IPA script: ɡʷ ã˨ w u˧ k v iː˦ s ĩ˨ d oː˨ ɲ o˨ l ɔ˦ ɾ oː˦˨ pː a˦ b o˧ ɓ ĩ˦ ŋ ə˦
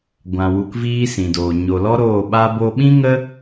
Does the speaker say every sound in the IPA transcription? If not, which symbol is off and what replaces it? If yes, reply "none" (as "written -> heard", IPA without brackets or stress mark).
pː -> ɓ